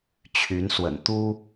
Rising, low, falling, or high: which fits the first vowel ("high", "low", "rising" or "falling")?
rising